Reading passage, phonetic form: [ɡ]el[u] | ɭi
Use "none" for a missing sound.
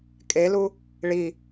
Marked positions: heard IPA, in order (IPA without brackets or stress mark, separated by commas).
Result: kʼ, u